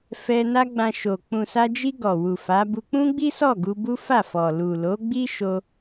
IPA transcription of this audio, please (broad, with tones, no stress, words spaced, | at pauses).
fɛ˧ na˦ɡ͡bã˧ʃo˨ k͡pũ˨sa˧d͡ʒi˧ ɡɔ˨wu˨ fa˨˦bu˧ k͡pũ˦ɡ͡bi˦ sɔ˦˨ɡu˧ bu˦fa˦˨fɔ˨ lu˨lo˨˦ɡ͡bi˦ʃo˧